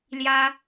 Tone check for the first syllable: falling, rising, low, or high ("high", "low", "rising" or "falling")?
high